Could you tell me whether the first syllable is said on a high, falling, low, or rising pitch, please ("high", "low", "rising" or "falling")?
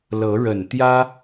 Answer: rising